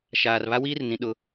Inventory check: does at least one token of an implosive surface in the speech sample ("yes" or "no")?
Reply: yes